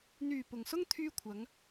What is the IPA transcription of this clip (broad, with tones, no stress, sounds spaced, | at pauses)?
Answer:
n̪ yː˨˩ p ʊ˨˩ ŋ s ʊ˥ ŋ t̪ʰ yː˧ kʷʰ ɐ˨˧ ŋ